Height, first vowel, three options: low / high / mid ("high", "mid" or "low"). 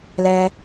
mid